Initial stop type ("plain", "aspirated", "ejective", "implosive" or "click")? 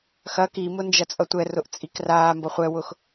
plain